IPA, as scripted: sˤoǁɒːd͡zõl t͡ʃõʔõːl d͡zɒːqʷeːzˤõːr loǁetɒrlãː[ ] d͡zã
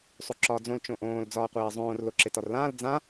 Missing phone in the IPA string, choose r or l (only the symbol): l